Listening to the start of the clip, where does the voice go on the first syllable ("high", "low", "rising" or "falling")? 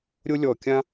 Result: high